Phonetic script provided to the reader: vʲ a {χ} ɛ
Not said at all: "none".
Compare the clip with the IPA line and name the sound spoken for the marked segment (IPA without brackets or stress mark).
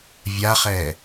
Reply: χ